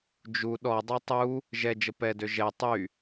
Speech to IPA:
d͡ʒ u ɗ ɔ dˤ u tˤ u | ʒ ɛ d͡ʒ ə p ɛ d ø ʒ ɛ tˤ y

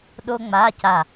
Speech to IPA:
ɗ o˥ ŋ͡m a˧˥˧ c a˦˨

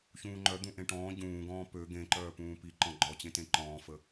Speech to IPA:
ç ũː ŋ͡ǃ œ d̪ ũ ʔ ẽ ʈ ɔ̃ː ɟ ũː ɡ ɔ̃ː p ø ɡ ẽ ǃ œː p ũː p i ǃ ɔ̃ ɡ͡ǃ ɔ t͡ɕ ẽ t ẽ ǃ ɔ̃ː f ə

